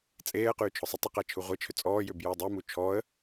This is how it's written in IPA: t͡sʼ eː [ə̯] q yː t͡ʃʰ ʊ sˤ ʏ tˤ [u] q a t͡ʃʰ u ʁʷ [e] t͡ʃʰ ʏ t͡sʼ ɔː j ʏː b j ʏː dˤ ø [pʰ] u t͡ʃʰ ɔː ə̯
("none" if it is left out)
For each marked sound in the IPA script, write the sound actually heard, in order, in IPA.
ə̯, ʊ, e, m

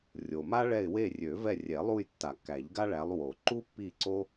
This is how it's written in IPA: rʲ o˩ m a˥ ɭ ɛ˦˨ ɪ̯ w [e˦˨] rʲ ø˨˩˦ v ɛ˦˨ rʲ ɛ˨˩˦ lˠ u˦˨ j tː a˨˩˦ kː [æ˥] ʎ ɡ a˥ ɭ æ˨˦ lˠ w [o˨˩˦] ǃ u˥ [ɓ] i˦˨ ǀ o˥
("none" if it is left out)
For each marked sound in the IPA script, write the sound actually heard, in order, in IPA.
e˦˨, æ˨˩˦, o˨˩˦, pː

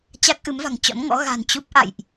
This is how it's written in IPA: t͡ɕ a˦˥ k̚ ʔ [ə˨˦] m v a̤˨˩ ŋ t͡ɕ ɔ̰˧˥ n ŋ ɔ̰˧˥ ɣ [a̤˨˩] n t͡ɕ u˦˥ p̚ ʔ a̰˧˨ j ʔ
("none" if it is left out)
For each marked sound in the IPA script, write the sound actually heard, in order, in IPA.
ɨ˨˦, a̤˨˩

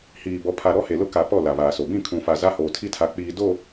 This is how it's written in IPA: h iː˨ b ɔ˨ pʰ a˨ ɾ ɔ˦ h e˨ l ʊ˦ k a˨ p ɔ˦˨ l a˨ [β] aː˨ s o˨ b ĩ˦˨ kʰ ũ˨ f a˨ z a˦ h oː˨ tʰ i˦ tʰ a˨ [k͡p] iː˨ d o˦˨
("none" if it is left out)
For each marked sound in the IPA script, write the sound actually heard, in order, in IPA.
β, k͡p

